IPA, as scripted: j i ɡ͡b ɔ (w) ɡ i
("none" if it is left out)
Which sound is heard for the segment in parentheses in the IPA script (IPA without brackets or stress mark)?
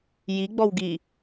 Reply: w